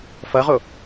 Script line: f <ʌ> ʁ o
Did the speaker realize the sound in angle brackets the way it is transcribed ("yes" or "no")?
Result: yes